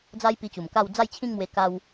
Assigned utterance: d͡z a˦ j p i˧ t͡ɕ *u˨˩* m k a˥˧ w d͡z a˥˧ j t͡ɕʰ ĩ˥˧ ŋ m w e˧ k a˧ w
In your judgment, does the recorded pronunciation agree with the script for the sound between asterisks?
yes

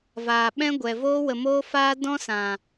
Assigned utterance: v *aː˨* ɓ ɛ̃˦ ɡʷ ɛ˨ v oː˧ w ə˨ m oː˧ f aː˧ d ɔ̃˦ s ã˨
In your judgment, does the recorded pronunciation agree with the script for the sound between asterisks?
yes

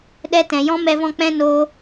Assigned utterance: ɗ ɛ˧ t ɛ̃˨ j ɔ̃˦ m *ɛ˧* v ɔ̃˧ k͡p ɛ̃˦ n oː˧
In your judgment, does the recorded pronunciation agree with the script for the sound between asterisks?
yes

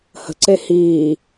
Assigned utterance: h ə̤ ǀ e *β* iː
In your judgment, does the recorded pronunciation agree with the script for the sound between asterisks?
no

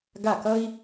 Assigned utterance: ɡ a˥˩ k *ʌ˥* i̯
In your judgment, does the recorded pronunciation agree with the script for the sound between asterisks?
yes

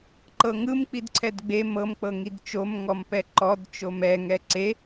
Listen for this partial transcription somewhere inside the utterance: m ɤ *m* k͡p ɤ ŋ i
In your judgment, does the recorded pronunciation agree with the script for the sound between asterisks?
yes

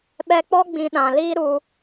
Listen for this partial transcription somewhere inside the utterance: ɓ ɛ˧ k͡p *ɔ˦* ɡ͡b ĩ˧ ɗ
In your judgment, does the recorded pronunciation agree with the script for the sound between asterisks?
yes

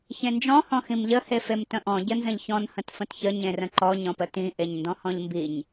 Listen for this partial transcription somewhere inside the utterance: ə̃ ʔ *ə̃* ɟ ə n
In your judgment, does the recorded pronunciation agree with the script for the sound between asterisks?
no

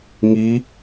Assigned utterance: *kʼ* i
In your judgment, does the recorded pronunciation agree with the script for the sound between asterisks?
no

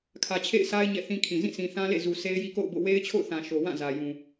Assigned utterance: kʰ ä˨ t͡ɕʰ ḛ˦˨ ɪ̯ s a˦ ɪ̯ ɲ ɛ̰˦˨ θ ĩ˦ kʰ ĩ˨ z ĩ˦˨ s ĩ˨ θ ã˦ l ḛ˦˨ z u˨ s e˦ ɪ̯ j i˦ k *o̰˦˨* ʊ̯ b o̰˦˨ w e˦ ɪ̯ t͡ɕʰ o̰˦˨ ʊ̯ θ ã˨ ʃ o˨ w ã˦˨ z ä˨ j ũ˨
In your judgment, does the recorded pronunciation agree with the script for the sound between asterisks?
yes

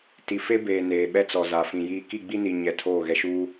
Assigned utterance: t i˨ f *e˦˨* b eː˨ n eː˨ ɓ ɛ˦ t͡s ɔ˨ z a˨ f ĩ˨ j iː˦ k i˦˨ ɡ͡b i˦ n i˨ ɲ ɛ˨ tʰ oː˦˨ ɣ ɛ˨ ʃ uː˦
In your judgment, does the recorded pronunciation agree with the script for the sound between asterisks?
no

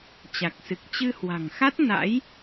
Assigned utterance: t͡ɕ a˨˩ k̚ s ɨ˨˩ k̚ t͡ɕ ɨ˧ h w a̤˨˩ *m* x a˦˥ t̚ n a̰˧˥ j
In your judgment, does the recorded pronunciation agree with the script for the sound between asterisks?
no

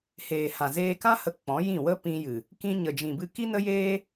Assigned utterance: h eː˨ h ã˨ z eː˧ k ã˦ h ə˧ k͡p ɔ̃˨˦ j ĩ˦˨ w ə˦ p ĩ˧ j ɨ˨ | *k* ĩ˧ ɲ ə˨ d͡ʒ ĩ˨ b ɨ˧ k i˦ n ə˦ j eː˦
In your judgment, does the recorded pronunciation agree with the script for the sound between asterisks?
yes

